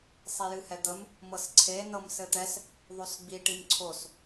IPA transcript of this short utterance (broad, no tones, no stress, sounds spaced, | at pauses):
sˤ i j ɨ h ɛ d̪ ə m | m ɤ s ǀʰ e n ɤ m s ɘ t̪ ɛ s | ðˤ o s ɡ͡b i ʈ i m ǀʰ o s